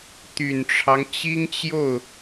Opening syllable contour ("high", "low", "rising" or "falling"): low